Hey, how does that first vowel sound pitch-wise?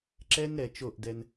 high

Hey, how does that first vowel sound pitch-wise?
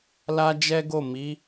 high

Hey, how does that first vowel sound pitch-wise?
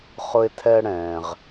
high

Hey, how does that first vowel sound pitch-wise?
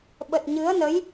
low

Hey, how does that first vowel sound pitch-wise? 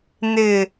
low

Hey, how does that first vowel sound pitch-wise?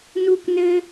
high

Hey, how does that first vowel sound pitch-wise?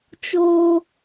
high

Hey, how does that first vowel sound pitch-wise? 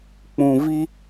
low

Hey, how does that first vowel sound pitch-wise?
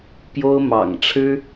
high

